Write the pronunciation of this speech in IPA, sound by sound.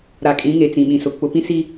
ɾ a˨ kʼ ĩ˨˦ ŋ e˨ t͡s ĩ˨ ɓ ĩ˨ s ʊ˨ k͡p ʊ˨ p ĩ˦ s i˦

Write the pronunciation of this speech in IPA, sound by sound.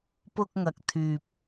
p ʊ˧ k̚ ŋ ɐ˨ k̚ t̪ʰ yː˨ p̚

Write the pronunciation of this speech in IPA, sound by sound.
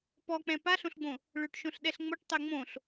p ɔ k͡p ɛ̃ p a ɬ õ ɬ ɡ͡b õ | ɭ ø ʈ ʃ õ ɬ ɗ ɛ ɬ ŋ͡m o ʈ tˤ ɛ ŋ͡m õ ɬ

